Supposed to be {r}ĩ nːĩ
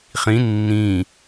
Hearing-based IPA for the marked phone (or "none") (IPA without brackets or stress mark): χ